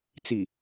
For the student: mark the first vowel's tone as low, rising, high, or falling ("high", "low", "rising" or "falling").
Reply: low